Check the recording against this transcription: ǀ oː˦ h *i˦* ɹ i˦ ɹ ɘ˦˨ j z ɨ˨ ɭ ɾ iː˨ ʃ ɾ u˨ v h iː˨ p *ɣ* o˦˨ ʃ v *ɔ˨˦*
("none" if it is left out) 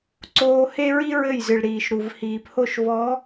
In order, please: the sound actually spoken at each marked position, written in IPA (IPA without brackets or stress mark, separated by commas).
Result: e˦, h, ɔ˨˦